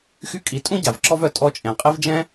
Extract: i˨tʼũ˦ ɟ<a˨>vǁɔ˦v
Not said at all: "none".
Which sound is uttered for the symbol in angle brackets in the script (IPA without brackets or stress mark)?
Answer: a˨